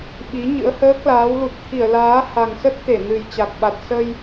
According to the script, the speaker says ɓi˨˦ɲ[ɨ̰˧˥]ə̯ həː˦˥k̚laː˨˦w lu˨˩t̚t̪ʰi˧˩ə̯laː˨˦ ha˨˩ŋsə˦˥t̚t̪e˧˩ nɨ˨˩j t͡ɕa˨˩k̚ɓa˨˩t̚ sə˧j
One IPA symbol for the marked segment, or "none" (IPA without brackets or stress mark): ɨ̰˧˥